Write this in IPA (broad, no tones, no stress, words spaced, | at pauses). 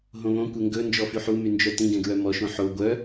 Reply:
ɦõβõ kʷeŋɡɵnd͡ʒɔ fyħumynd͡ʒœ tĩɡɛ̃ɡɹœ mɔʃõ ħo ɡʷœ